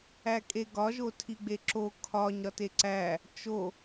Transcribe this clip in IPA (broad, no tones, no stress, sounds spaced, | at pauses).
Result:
æ kʼ e ɡ ɒ ʒ o tʰ i ɡ͡b e ǁ o kʰ ɒ ɲ ɾ ɒ t e ǀ æ | t͡ʃ o